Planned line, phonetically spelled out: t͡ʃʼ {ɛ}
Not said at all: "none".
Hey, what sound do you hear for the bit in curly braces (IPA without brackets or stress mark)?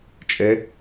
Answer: ɛ